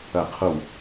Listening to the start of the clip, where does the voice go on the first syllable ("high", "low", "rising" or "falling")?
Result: falling